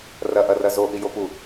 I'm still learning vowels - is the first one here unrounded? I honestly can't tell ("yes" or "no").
yes